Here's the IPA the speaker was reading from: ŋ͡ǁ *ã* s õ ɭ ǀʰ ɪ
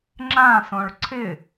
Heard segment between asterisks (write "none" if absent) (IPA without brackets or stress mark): ã